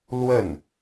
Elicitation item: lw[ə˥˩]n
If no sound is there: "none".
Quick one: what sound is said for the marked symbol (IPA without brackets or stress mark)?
ə˥˩